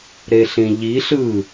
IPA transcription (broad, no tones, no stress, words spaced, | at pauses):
ɾeɬĩʎi ɬɯ